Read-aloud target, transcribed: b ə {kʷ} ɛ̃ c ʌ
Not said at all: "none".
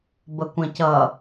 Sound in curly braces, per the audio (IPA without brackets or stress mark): kʷ